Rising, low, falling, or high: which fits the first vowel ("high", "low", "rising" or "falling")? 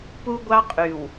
high